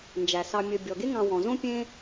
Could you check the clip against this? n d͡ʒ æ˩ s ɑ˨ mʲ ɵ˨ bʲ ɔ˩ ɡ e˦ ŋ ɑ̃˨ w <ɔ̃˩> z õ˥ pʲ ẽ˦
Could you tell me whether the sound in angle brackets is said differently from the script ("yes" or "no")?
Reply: no